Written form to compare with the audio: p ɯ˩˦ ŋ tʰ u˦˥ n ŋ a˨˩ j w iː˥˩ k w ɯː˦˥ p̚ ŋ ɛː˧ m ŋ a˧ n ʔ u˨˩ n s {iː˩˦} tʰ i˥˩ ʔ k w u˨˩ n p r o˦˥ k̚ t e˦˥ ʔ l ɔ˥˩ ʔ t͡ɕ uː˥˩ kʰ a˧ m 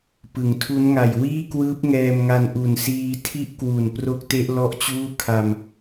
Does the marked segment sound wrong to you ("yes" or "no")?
yes